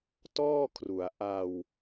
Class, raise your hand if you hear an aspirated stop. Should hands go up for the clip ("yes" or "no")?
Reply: yes